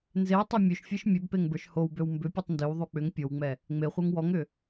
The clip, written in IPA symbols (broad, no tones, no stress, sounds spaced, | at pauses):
n z e w tˤ o mʲ ø ʃ fʲ e ʃ mʲ ø b p e ŋ b ə˞ ʃ h o w b ø w m b ʏ pʲ u tˤ n d ø w ðˤ u k͡p ʏ ŋ pʲ o w ŋ͡m ɛ | ŋ͡m e χʷ ə˞ ŋ w ɔ ŋ ʏ